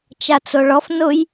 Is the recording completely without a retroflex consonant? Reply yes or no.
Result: no